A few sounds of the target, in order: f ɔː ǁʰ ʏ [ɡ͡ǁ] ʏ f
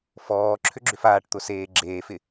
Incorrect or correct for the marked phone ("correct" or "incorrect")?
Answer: correct